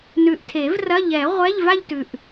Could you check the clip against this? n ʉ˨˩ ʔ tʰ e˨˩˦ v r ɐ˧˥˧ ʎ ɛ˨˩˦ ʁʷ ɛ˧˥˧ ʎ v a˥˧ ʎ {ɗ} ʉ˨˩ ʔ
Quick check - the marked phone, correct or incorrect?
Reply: incorrect